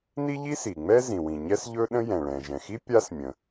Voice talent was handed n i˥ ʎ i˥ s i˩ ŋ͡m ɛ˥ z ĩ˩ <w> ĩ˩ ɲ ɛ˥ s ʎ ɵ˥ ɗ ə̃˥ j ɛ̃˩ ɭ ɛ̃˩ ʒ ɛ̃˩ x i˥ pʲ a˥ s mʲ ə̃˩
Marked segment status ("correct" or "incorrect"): correct